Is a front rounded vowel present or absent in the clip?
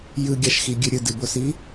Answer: absent